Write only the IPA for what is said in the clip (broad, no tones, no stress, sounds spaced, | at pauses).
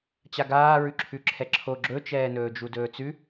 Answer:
t͡ɕ a ɡ aː ɹ ʉ ǁʰ ʉ ǁʰ ɛ ǁʰ o ɡ͡ǁ ɵ t͡ʃ ɛː n ɵː d͡ʒ u d ɵː t͡s ʉ